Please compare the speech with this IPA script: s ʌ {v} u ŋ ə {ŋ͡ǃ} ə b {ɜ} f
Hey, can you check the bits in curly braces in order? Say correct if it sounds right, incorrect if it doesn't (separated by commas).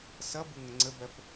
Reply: incorrect, incorrect, correct